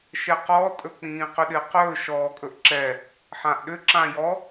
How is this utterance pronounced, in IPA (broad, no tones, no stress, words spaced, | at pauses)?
ʃɛqɔtʼɵ k͡pĩːqʏɗɪːqɵː ʃɔːkʼɵʔǁɛ | ħãʔɗʏ ǁãjɔ